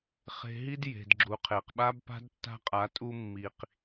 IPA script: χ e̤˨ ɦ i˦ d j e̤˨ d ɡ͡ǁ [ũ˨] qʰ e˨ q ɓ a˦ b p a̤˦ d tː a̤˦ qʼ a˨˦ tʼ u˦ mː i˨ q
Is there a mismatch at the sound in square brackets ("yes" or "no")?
yes